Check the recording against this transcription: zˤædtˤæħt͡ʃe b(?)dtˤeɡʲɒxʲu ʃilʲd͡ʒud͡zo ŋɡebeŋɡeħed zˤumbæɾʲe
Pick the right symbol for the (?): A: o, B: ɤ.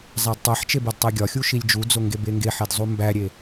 A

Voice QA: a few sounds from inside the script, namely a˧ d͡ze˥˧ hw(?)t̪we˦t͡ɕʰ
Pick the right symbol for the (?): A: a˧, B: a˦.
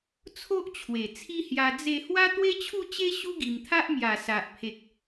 B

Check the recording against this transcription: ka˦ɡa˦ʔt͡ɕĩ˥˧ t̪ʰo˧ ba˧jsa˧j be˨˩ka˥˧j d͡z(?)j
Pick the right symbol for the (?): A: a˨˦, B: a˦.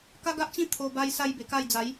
A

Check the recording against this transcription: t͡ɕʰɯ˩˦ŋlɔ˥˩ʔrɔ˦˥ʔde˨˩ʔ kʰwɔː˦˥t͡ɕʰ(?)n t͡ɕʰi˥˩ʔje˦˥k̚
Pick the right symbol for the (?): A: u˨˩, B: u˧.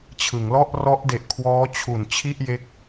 A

